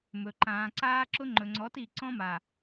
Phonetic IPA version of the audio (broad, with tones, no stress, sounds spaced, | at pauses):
m ɵ˨ ǃ ãː˨ ǀ aː˦ ǁ ʊ˦ ŋ͡ǃ ɵ˨ ŋ͡ǀ ɔ˨˦ t i˨ ǀ ɔ̃˦ m a˨